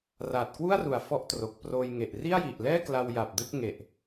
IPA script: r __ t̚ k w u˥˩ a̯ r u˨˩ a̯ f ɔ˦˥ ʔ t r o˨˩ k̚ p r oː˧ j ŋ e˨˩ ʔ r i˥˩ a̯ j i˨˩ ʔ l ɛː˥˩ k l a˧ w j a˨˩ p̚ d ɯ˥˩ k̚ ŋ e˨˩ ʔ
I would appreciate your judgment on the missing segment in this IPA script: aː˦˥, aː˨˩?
aː˨˩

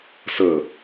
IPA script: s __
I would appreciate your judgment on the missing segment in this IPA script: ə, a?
ə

